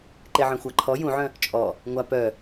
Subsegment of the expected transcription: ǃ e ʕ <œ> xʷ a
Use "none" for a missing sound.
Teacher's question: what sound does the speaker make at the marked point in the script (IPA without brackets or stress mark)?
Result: œ̃